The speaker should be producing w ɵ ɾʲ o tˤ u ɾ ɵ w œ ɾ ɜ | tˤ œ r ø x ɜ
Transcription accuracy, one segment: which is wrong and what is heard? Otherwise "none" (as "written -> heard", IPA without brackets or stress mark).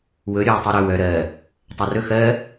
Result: ø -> ɵ